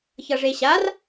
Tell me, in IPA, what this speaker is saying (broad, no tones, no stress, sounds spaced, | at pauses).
ç ʌ ʐ e ɕ a r